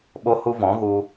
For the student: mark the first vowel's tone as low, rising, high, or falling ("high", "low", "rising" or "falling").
high